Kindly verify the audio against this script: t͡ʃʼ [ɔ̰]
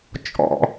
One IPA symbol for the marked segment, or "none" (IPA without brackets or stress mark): ɔ̰